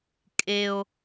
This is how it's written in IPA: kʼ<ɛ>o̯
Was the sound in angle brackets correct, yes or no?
no